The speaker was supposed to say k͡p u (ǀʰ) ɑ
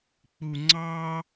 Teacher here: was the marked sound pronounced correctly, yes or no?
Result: no